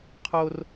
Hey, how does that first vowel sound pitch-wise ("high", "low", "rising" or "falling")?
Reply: high